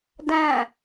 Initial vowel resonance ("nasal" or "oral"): nasal